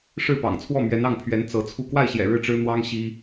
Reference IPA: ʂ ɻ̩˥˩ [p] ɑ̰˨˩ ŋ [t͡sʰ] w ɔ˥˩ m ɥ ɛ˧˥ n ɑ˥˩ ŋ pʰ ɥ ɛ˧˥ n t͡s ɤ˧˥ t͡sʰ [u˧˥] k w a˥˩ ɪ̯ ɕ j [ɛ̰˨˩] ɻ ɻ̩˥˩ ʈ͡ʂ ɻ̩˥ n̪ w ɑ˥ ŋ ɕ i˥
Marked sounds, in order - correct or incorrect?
correct, correct, incorrect: u˥˧, correct

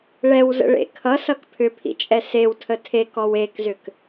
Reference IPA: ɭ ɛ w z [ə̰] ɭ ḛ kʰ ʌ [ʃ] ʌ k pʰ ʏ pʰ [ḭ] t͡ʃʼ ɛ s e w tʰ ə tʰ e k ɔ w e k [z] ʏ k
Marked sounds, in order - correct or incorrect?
correct, incorrect: s, correct, correct

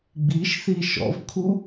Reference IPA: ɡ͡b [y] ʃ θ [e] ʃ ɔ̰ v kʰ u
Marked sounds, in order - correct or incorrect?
incorrect: i, incorrect: i

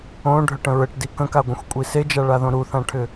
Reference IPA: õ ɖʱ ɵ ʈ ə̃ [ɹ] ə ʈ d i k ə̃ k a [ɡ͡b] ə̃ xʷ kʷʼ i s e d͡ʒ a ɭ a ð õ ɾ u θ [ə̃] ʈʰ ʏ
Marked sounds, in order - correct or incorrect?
correct, incorrect: ɡʷ, incorrect: ã

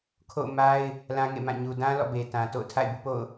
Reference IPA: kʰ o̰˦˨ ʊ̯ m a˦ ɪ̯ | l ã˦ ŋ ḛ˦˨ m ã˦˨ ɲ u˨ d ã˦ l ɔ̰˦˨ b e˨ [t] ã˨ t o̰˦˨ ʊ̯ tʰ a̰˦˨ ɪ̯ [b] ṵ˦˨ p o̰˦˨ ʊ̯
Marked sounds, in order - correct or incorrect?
correct, correct

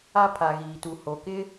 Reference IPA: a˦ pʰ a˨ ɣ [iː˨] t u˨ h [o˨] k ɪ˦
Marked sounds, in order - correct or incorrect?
correct, correct

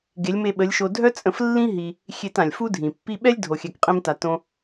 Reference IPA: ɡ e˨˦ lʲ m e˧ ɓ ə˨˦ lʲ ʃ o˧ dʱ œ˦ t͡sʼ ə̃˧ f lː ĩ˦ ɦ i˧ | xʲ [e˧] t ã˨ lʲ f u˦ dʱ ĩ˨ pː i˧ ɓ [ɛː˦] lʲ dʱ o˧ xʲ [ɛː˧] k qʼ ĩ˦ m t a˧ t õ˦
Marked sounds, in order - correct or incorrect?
correct, incorrect: ɛ˦, incorrect: ɛ˧

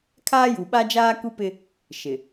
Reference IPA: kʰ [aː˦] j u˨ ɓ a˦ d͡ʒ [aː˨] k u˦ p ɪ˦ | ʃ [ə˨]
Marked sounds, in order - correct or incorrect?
correct, incorrect: aː˦, incorrect: ɪ˨

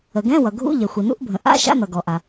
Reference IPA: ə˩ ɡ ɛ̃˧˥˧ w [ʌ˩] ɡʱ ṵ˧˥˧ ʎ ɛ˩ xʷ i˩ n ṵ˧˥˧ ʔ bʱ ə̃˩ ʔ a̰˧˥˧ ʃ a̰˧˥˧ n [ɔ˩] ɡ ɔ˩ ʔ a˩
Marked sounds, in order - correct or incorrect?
correct, incorrect: ʌ˩

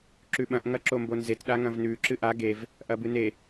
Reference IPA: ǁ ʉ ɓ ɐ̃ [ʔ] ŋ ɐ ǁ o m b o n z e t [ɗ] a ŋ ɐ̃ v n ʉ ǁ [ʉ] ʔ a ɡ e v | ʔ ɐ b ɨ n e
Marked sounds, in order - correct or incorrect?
correct, correct, incorrect: ɨ

